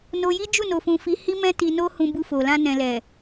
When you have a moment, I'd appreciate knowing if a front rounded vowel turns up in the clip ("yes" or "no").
no